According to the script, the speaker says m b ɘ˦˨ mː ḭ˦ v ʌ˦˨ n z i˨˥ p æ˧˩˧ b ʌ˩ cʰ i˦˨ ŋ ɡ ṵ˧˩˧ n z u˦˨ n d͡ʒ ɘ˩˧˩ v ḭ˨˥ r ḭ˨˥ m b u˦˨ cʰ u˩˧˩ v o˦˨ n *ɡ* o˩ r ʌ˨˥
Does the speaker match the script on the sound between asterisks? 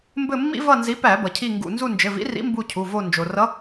no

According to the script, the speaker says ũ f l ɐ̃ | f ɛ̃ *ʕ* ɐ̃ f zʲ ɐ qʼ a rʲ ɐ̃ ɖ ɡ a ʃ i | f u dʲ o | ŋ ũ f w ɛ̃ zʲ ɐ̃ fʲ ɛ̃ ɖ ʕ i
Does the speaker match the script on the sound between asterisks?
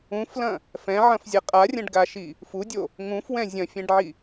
yes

